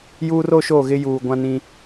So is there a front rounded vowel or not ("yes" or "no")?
no